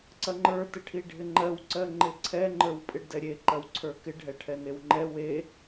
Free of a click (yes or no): no